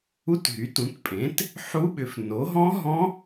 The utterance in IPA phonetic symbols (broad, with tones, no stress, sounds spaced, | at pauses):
u˦˥ t ɦ y˩˥ t ũ˩˥ t pʼ ẽ˩˥ t | ħ u˦˥ ɓ ʏ˩˥ f n o˩˥ ɦ ɔ̃˦˥ ɦ ɔ̃˦˥